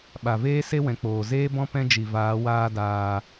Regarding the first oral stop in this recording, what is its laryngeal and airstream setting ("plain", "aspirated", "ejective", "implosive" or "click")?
implosive